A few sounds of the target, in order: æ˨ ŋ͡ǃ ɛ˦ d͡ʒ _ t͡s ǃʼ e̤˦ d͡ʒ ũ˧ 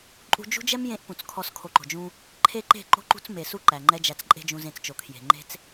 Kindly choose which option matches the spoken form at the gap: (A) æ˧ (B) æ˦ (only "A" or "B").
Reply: A